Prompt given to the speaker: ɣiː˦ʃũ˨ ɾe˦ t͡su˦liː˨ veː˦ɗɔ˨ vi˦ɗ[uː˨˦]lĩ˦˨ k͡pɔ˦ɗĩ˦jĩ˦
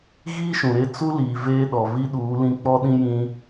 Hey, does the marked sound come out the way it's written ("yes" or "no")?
yes